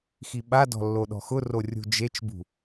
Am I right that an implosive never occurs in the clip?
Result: no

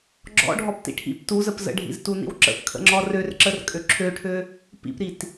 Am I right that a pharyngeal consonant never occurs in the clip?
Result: yes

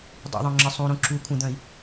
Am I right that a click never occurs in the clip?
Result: no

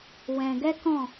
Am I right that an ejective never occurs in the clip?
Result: yes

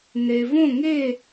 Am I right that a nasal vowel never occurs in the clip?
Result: no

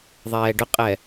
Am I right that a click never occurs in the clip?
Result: yes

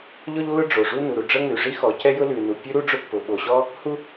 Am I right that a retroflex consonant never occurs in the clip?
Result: no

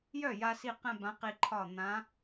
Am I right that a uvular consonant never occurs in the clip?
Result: no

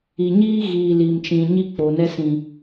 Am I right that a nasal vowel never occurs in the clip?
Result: no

